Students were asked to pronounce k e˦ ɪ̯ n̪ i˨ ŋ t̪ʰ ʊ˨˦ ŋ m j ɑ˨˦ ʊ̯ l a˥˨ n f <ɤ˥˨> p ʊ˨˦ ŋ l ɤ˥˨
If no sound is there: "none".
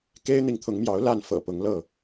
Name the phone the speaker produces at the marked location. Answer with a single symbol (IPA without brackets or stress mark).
ɤ̰˨˩